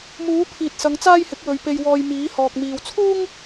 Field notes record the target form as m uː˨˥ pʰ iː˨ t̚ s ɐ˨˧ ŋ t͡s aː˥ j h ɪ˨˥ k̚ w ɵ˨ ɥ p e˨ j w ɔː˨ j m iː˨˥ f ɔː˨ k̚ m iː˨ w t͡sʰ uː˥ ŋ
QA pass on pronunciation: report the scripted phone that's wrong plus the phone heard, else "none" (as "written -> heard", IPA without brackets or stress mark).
f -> h